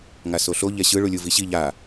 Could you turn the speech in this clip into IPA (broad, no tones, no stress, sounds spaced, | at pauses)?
ŋ a s o ɬ o ʎ ɛ ɕ ɯ ɭ u lʲ u v i ɕ i ʎ a